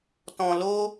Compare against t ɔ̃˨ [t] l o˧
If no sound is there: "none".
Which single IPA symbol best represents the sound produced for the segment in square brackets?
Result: none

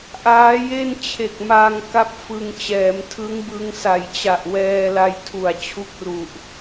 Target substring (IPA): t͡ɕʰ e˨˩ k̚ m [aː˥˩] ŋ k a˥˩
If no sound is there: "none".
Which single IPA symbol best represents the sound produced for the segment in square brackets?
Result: aː˧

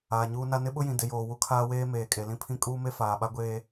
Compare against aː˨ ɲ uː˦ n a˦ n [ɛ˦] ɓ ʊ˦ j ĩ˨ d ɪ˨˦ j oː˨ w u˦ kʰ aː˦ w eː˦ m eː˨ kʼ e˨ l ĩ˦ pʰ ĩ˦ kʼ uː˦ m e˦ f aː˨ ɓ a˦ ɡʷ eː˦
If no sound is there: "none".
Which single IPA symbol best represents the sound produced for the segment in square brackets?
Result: ɪ˦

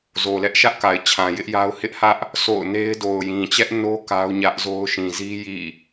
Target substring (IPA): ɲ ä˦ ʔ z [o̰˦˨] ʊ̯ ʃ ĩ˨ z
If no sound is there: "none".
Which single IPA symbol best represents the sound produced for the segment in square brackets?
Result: o˦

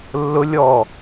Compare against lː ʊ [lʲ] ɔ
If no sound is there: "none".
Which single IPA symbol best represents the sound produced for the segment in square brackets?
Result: lʲ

